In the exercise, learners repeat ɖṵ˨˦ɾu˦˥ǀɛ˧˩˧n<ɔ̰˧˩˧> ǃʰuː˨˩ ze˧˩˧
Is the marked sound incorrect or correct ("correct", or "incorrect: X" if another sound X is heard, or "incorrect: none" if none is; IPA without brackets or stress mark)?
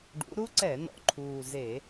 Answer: incorrect: ɔ̰˨˩